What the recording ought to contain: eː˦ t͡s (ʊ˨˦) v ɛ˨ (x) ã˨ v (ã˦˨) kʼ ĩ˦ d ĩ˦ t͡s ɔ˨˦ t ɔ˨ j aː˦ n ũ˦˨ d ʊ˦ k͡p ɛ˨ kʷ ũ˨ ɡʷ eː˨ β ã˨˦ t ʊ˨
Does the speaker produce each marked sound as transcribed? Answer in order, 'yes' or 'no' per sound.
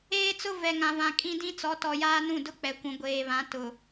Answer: no, no, no

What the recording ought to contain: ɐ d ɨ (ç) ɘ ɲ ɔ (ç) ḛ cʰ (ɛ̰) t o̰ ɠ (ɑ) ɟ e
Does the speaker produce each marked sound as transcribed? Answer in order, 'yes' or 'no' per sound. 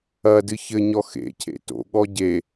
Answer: yes, no, no, no

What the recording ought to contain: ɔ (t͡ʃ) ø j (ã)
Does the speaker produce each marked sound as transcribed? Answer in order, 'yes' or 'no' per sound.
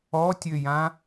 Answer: no, yes

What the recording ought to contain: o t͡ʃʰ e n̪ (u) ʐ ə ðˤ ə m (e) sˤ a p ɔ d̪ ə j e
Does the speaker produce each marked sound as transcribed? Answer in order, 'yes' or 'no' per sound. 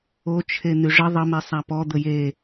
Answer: no, yes

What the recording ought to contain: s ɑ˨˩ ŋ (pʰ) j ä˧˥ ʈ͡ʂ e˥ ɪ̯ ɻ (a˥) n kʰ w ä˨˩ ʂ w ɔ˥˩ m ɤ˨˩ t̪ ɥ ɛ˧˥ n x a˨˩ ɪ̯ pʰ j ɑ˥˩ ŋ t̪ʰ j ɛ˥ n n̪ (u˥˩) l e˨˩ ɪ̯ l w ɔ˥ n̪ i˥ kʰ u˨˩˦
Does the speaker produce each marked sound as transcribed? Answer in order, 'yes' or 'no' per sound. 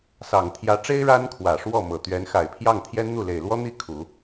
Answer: no, yes, yes

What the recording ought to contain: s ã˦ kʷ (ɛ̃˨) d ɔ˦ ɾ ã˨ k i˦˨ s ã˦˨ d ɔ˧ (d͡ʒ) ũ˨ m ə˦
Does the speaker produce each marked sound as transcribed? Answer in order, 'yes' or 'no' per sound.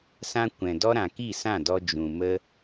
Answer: yes, yes

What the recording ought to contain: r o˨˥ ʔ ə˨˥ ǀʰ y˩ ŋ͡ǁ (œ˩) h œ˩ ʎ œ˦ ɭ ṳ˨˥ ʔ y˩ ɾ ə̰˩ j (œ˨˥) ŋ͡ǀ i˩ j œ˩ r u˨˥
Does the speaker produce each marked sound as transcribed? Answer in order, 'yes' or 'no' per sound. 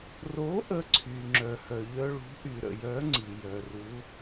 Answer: yes, yes

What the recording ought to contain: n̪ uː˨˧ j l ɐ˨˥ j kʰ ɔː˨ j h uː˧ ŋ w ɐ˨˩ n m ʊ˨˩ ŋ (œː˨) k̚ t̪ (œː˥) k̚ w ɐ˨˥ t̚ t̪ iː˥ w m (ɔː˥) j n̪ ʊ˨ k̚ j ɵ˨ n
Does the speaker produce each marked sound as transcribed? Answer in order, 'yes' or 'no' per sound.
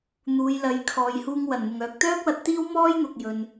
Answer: yes, yes, yes

